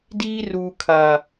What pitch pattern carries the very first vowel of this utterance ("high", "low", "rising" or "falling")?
high